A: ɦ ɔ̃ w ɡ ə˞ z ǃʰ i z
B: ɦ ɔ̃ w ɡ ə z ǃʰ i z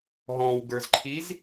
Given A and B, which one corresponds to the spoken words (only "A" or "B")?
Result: A